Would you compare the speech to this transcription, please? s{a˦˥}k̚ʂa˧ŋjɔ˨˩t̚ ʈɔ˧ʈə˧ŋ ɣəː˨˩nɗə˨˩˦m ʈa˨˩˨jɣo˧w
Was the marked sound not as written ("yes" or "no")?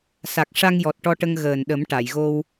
yes